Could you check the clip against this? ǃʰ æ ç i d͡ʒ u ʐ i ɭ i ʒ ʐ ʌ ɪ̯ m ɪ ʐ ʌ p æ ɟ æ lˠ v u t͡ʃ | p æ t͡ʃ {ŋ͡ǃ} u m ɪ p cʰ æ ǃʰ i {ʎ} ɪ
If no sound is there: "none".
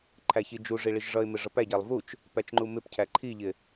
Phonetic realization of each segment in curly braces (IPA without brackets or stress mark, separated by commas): ŋ͡ǃ, ʎ